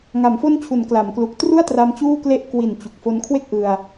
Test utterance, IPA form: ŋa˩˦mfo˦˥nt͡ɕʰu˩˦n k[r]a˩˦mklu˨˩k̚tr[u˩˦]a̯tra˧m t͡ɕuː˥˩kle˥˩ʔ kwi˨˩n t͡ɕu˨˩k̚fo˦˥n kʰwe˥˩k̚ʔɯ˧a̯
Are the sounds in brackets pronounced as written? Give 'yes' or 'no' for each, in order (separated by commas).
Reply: no, no